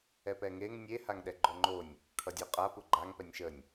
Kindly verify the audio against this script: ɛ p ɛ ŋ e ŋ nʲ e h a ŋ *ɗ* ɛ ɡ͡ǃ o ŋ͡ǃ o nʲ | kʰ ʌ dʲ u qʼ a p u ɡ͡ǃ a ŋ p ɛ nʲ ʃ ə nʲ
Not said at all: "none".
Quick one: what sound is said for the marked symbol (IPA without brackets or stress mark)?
ɗ